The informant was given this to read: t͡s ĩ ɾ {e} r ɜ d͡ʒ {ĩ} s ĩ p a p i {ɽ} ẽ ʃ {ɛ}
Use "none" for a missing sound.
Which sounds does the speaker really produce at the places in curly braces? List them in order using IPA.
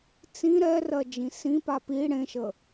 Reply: ɛ, ĩ, ɽ, ə

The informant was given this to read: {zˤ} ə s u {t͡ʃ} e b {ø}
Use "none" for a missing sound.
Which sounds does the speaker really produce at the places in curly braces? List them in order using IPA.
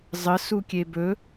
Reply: zˤ, kʲ, ɵ

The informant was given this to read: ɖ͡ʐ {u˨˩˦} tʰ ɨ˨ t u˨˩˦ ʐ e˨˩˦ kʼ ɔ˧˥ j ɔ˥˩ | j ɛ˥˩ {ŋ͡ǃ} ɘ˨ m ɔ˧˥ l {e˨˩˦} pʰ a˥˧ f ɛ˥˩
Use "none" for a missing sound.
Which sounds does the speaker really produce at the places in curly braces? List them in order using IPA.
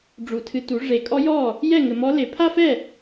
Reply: u˨˩˦, ŋ, e˨˩˦

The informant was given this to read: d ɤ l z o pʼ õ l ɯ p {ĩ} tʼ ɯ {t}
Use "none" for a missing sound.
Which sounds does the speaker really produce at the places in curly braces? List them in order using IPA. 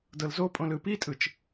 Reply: i, t͡ʃ

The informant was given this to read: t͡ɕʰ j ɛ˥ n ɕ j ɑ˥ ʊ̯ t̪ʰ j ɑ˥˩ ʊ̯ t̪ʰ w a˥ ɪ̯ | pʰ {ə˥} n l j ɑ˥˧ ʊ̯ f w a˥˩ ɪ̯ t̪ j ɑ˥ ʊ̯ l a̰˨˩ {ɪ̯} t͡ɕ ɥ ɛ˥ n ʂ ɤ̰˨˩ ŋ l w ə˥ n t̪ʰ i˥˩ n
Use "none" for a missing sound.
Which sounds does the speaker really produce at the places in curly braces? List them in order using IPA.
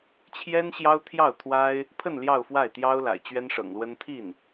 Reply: ə˥˧, ɪ̯

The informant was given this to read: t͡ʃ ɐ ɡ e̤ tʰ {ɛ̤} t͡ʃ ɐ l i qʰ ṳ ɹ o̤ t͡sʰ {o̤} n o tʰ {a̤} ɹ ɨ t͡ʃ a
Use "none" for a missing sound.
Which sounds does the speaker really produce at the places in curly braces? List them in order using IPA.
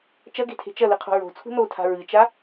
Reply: e̤, ṳ, a̤

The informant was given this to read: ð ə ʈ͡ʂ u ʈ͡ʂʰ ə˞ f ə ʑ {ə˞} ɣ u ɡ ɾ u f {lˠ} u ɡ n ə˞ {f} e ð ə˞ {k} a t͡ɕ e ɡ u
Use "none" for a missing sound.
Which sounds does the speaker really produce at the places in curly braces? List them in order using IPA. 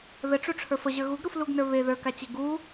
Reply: ə˞, l, β, k

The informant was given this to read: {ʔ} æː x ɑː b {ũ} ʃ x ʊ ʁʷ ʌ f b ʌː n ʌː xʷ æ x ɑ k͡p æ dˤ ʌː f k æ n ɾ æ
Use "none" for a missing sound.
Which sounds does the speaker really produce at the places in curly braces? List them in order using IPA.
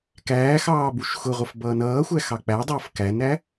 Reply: k, u

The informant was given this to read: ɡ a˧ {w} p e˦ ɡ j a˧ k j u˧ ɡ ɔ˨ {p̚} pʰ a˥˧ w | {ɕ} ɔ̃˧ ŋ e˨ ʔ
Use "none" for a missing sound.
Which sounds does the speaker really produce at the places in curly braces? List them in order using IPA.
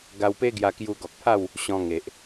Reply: w, k̚, ɕ

